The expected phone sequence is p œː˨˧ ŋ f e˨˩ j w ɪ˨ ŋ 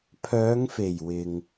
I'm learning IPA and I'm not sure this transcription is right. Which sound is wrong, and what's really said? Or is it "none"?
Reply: p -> pʰ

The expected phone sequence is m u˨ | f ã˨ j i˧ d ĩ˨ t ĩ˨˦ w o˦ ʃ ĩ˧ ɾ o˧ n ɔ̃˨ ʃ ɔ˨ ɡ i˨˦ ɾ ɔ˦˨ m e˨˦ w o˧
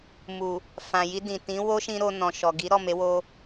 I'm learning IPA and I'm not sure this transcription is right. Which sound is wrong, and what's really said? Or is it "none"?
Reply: none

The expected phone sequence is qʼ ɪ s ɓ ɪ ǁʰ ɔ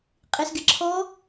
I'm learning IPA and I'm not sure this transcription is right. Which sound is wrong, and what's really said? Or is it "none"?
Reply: ɓ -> ɡ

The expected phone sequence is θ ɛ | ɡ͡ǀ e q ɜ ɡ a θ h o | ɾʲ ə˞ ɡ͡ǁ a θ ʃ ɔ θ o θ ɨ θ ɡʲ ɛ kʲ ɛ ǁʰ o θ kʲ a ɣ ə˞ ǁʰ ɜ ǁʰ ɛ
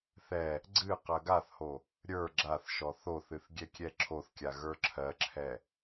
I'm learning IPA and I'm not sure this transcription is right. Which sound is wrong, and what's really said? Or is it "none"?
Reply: e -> ɨ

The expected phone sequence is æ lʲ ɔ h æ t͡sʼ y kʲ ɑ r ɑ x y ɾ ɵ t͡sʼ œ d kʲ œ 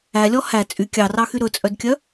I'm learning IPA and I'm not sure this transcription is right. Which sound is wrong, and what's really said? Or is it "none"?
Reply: none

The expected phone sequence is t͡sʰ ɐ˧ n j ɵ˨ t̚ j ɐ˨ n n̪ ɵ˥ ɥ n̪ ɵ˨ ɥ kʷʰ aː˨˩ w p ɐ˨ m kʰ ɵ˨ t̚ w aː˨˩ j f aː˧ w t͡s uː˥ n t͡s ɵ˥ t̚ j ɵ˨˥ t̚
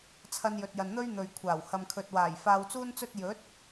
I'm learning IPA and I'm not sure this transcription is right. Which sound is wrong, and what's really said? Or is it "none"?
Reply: p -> h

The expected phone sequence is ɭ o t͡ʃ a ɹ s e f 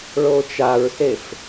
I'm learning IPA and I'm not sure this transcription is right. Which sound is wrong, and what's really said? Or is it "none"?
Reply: none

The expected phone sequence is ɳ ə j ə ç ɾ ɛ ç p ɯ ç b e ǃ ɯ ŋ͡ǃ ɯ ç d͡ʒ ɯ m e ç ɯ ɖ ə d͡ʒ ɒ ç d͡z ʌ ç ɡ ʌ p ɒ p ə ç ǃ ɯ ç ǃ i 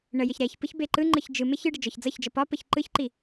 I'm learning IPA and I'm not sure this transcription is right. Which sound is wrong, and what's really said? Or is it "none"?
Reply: ɡ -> d͡ʒ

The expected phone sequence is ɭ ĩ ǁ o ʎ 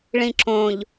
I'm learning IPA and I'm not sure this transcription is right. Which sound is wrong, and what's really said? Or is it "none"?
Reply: o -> õ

